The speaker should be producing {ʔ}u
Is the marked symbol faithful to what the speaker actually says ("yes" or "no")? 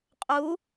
no